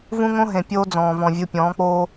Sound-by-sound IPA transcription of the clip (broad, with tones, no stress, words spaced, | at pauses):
vũ˦ŋõ˦ɦẽ˨ pʲoː˦d͡zɔ̃ː˨ vɔ̃˨vʲu˨pʲɔ̃ː˨˦k͡poː˦